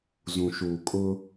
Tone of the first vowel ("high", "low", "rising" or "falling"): low